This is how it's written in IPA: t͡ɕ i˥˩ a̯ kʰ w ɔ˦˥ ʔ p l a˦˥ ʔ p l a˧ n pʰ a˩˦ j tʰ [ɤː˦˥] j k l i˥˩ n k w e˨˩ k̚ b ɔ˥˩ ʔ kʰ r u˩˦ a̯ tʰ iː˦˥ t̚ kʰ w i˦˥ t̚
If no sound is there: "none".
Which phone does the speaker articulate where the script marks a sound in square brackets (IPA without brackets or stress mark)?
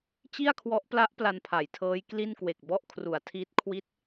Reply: ɤː˦˥